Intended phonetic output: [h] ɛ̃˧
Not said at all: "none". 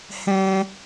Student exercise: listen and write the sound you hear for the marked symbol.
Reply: h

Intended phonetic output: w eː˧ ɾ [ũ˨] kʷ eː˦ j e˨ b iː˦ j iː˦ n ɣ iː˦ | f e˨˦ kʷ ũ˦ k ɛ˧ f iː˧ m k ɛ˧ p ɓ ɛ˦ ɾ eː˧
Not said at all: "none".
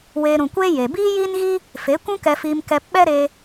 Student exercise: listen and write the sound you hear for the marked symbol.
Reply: ũ˨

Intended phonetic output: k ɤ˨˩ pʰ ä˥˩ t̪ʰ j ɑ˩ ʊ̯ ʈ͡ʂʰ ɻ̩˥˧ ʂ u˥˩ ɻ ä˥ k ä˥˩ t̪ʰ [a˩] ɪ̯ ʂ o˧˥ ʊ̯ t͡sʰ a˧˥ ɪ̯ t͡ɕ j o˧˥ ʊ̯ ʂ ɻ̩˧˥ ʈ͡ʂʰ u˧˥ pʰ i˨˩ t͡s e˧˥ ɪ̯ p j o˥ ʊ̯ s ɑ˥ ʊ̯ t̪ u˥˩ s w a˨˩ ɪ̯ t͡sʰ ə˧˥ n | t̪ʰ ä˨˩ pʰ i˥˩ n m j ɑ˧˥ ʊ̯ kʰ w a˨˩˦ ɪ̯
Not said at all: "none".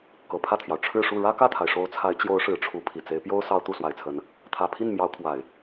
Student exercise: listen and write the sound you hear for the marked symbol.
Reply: a˩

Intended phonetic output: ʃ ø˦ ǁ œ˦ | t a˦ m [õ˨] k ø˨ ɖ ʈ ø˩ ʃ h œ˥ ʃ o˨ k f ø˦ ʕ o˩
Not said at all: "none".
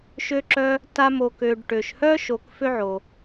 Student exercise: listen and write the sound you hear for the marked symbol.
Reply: o˨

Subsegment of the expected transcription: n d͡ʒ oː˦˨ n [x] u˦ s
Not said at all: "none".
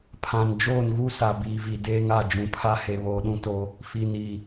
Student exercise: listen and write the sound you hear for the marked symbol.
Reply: ɣ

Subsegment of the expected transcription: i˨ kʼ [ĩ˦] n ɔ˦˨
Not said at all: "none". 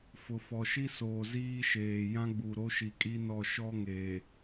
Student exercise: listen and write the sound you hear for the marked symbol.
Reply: i˦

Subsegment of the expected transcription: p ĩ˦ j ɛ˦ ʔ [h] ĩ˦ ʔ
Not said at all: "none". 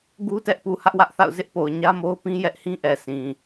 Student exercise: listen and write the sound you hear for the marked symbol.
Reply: h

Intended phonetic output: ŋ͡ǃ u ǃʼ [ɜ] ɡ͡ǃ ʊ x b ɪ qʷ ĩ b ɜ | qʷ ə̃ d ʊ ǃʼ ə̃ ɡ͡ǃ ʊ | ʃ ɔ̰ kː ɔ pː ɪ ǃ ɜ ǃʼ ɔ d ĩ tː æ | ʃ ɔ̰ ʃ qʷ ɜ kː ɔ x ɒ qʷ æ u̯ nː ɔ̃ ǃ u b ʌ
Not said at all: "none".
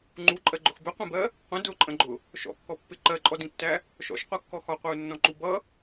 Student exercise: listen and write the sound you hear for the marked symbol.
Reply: ɜ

